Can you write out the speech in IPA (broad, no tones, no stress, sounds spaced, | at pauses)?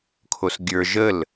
kʰ o s ɡʲ ə˞ ʒ ə l